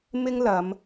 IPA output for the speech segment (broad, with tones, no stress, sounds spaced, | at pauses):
m ɪ˥ ŋ l ɐ˨˧ m